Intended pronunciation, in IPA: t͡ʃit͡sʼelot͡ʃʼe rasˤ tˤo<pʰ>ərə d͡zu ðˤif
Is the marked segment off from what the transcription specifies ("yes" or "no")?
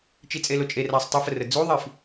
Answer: yes